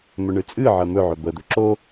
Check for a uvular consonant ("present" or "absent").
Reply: absent